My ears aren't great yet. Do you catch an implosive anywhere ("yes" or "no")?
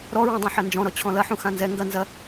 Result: no